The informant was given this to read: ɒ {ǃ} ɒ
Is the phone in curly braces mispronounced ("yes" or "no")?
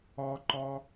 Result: no